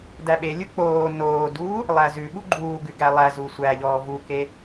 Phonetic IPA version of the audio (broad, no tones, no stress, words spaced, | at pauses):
dæɓelʲu k͡poː noːduː | lˠæzʉɓu ɡ͡ǃuːɡʉ ɡælˠæzu sʷæʎɔː vuke